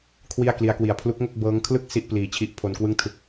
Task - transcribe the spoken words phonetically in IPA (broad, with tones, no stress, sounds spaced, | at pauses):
kʰ w i˥˩ a̯ k l i˦˥ a̯ k w i˧ a̯ pʰ l u˦˥ k̚ ŋ o˥˩ k̚ b ɤː˦˥ ŋ kʰ l ɯ˥˩ k̚ s i˥˩ ʔ p l iː˧ t͡ɕʰ i˦˥ ʔ pʰ o˧ n k w ɯ˥˩ ŋ tʰ ɯ˦˥ k̚